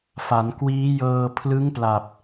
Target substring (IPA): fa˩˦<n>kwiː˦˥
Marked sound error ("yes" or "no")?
no